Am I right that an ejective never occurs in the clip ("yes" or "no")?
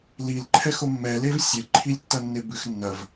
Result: yes